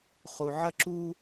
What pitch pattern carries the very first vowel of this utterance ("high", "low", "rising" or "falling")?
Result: low